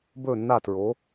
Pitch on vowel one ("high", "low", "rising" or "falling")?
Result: falling